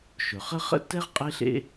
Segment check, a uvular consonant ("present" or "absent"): present